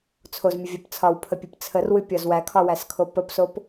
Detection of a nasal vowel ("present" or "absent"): absent